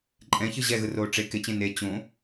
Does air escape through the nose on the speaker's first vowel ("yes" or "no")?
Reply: yes